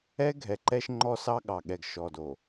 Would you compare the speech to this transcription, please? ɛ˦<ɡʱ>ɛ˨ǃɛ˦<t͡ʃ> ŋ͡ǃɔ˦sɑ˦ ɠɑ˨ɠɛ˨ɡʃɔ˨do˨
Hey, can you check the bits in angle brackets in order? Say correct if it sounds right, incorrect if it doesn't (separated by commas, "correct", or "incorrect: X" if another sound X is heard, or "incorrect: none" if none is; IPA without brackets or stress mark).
correct, incorrect: ʃ